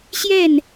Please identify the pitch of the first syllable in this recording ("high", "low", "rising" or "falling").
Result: falling